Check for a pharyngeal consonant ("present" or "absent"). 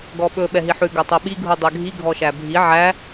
present